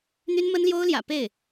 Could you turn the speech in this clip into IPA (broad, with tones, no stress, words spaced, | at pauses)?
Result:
n̪y˥nmə˥nljo˥ʊ̯ljä̰˨˩ pe˥˩ɪ̯